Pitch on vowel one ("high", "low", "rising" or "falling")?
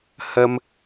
high